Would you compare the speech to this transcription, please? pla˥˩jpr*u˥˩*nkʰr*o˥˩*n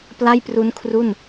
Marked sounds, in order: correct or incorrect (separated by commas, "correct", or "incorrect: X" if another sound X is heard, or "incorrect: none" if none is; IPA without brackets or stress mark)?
incorrect: u˦˥, incorrect: u˥˩